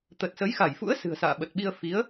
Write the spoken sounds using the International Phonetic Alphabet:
t̪ ə˨˩ t̚ s ə˨˦ j x a˧˩ j f ṵ˧˥ ə̯ s ɨ̤˨˩ ə̯ s a̰ː˧˨ ɓ ə˨˩ t̚ ɓ i˧ ə̯ f i˨˦ ə̯

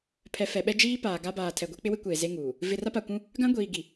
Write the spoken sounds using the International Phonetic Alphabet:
pʰ ɛ˨ f ɛ˨ ɓ ɛ˦ d͡ʒ iː˦ p aː˨ ɡ a˦ b aː˨ tʰ ɛ˨ ɡʷ e˦ k͡p ɪ˦ w ɪ˦ kʷ eː˨ z e˦ ŋ uː˨ | v ɪ˨ r a˦ p a˨ kʷ ũ˦ | ɡ ã˦ ɡʷ iː˨ ɡ i˨

